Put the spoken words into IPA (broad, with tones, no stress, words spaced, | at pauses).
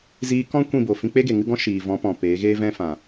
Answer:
ziː˧kɔ̃˦ kʷĩ˦˨bo˨ fĩ˧k͡pe˦ɡe˨ ŋɨ˦ɡɔ̃˦ʃiː˨ vɔ̃˨˦ pɔ̃˨peː˨˦ɣeː˦ vɛ̃˦ fã˨